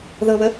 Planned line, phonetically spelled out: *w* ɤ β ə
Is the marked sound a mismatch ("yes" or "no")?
yes